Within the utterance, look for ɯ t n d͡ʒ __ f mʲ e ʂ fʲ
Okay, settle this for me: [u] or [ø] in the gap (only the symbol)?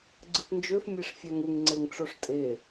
ø